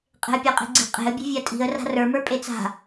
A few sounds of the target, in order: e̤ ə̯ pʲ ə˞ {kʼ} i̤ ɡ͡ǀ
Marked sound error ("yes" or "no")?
yes